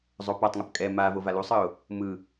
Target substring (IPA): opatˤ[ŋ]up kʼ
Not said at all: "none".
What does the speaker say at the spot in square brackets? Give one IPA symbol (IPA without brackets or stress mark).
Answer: ŋ